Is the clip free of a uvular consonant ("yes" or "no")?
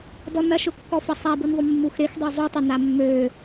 yes